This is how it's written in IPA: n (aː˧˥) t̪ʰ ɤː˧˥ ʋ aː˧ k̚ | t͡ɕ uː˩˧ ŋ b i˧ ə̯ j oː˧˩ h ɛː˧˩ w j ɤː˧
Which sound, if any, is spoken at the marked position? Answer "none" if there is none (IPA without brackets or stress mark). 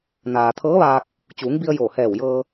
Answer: aː˩